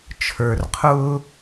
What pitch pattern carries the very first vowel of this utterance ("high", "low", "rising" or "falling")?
low